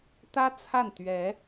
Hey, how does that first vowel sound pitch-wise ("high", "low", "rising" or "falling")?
high